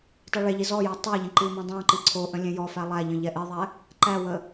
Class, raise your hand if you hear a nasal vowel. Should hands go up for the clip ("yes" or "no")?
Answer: yes